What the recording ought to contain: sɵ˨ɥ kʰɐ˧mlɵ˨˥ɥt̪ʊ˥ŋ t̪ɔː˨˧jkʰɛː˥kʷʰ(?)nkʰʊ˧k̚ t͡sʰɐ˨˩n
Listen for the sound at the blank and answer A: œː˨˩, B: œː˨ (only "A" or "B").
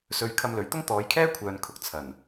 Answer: B